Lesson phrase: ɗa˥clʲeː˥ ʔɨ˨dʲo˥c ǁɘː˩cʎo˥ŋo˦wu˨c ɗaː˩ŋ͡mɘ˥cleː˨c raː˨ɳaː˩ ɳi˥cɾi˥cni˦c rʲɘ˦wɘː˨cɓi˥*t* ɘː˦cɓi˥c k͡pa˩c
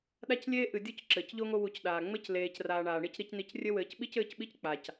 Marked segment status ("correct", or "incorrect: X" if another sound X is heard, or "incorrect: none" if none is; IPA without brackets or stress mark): incorrect: c